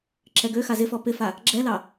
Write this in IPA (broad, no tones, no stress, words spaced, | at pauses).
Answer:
ǁɛɡøxa zɪfɔ pɪfa | ɡ͡ǁɛlɑ